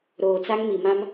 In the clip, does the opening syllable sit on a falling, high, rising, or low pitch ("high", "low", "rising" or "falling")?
low